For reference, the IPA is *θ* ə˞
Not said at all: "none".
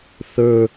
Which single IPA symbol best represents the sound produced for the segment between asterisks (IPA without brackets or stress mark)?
θ